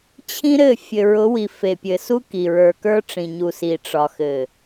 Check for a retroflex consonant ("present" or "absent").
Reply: present